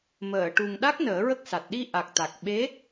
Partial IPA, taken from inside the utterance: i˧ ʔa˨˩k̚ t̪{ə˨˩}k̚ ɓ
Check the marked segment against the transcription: incorrect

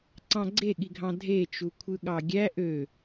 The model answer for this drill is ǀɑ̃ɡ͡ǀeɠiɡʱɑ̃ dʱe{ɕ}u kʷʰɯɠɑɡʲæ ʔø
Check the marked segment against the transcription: incorrect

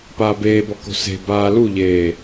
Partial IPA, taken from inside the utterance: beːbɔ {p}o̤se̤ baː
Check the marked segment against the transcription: incorrect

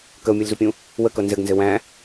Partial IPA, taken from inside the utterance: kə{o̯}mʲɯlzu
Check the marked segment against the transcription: correct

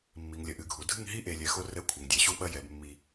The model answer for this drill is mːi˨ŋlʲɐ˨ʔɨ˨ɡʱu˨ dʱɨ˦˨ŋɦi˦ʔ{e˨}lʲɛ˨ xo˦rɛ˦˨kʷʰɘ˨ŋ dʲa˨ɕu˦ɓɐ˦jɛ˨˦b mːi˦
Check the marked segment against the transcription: correct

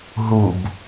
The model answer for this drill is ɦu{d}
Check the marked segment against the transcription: incorrect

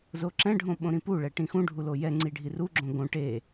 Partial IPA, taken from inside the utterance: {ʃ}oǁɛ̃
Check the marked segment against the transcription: incorrect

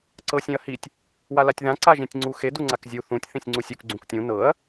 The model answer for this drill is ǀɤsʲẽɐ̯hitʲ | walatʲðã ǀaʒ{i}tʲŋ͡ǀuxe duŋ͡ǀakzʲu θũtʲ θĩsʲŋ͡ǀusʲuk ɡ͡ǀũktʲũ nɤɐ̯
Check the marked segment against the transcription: incorrect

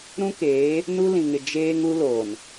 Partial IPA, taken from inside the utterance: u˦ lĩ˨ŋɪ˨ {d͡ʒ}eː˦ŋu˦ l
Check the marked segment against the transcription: correct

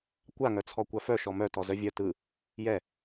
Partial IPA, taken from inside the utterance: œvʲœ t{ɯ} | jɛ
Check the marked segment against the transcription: correct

